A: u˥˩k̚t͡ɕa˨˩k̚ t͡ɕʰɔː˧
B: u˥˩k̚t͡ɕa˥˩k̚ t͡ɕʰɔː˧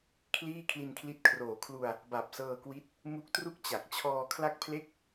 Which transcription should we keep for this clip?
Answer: A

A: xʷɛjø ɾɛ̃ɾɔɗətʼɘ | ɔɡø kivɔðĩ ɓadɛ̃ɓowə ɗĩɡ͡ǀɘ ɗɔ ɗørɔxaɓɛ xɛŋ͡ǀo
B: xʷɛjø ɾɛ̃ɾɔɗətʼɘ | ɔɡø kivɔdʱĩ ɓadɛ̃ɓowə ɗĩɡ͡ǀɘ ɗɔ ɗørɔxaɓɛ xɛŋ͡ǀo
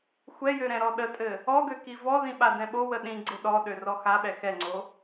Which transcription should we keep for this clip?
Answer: A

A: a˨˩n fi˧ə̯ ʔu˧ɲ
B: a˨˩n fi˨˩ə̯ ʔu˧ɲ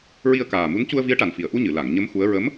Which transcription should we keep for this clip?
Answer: B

